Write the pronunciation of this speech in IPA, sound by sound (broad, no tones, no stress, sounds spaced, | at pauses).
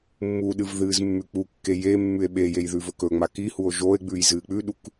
mː u ɗ ɨ v ð ɨː z mː ʉ k͡p u kː e j e mː ʉ e̯ ɓ e j e j ð ʉ v ɵ k ɵ ŋ͡m a k i h u o̯ ʒ o e̯ ɡ͡b ʉ j z ɨː k͡p ʉ ɗ u k